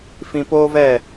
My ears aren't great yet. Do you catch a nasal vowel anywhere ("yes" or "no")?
yes